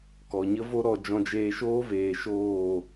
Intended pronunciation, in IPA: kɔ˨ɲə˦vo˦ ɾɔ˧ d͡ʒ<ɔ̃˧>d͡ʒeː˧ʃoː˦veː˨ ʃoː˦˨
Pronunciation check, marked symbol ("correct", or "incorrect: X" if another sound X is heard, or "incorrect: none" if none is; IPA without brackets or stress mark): correct